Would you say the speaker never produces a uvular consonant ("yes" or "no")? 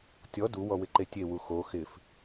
yes